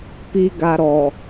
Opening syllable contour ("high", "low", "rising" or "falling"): high